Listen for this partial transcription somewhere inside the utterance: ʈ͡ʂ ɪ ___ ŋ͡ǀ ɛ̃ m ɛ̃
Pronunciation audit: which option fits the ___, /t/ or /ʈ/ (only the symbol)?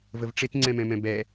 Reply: t